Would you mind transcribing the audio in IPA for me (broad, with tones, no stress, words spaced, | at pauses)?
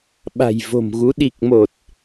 ɓa̤˨˩jvo̤˨˩mɣu˨˦ ɗi˨˩k̚mo˨˩t̚